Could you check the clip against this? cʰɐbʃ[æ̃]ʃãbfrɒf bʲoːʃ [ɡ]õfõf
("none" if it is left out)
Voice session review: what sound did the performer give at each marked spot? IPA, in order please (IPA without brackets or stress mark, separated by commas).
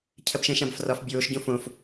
ɛ̃, ɟ